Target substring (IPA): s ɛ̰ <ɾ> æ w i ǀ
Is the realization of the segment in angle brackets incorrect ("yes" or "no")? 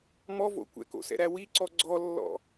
no